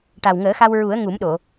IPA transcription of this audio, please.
ʈa˨˩wŋəː˨˩˦xa˧wɹu˨˩˦ə̯ ŋu˨˩˦mɗo˨˩˨

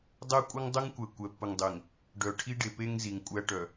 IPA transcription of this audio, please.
dˤɛ˦kʷʼə˦ŋ dˤə˦ŋkʷɛ˨ kʷɛ˨pːə˨ŋdˤe˨ŋ | ɖœ˨ ʈʰi˦ɖe˨pe˦ŋ zi˨ŋkʷʼæ˦ʈœ˨

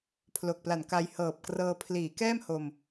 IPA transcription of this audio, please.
pʰlo˨˩k̚pla˨˩nka˧j hɤː˨˩p̚krɤː˧ pʰliː˩˦kɛː˥˩m ho˧m

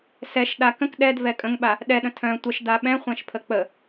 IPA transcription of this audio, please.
sɛʃɗa kə̃k ɗɛd vɛkʼə̃ŋɓa | ɗɛɗə̃ tʰœ̃ tʷəʃ daɓɛ̃χʷɛ̃ʃpʰə k͡pə

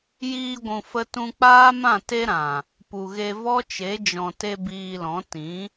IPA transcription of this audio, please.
jiː˧ɡʷũ˨fə˧tũ˧ k͡paː˦mã˦˨te˦ɾã˨ | pu˨ɣe˧ vɔ˦t͡ʃe˨˦ d͡ʒɔ̃˨te˧ biː˧lɔ̃˨˦ tĩ˨˦

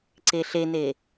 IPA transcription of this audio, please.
ǀeɬene

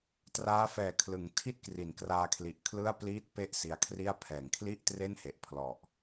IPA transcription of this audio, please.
traː˦˥fɛː˨˩ kʰlɯ˩˦ŋtʰi˥˩t̚ kri˩˦nkraː˧kʰli˨˩ʔ kʰlɯ˥˩a̯pliː˥˩t̚pe˥˩ʔ si˦˥a̯kʰri˥˩a̯ pʰɛː˩˦ŋkʰli˥˩ʔtre˥˩nhe˨˩ʔ pʰlɔ˨˩ʔ

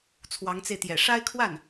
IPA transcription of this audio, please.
t͡sʰwɑ˧˥ŋt͡se˧ɪ̯t̪jɛ̰˨˩ ʂa˥ɪ̯kʰwa˥˩n

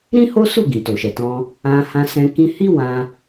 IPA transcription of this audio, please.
ɾĩ˦ho˦su˦˨ ɡĩ˨to˨ʃɛ˨tɔ̃˧ | ã˧ hã˧sɛ̃˧ kĩ˧hi˦ wã˧

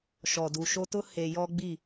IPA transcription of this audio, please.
ʃɔ˨du˨ʃo˦tʊ˦ he˨ jɔ˦ɡ͡bi˦˨

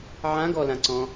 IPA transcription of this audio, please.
ʕãɡɔlãǀɔ̃

